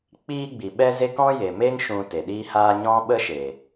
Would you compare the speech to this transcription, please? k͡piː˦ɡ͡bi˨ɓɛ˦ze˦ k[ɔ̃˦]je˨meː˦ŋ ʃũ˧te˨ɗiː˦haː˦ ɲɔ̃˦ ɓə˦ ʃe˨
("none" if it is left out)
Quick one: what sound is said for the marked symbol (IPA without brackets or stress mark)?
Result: ɔ̃˦